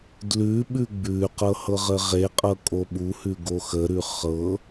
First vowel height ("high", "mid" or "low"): high